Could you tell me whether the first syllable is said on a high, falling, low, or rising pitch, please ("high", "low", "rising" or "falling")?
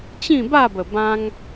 falling